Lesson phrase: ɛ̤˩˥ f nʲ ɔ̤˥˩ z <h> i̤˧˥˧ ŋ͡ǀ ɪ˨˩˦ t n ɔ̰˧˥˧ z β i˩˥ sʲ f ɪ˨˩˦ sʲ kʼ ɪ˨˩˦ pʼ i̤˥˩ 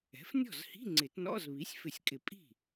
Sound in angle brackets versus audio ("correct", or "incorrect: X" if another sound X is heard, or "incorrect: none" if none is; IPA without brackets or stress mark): correct